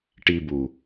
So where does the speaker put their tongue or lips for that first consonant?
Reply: retroflex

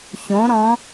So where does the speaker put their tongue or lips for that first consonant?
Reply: palate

